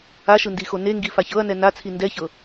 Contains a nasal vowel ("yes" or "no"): no